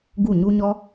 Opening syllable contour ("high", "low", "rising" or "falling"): falling